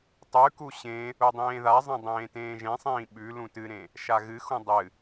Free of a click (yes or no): yes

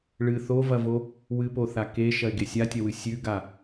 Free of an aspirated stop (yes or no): yes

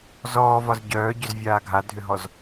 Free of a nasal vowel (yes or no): yes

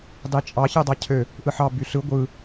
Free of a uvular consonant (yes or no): yes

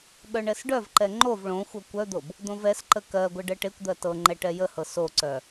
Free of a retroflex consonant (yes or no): no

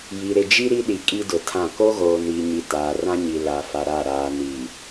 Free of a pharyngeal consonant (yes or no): yes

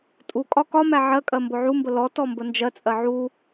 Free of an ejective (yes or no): no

